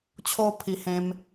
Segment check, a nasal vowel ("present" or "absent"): present